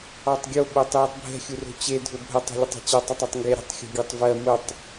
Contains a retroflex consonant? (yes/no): no